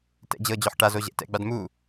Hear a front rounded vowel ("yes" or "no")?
no